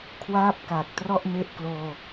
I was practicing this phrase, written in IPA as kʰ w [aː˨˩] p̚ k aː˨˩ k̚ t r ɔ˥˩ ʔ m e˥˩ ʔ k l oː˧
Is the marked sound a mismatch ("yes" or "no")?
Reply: yes